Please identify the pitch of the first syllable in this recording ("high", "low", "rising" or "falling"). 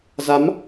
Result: rising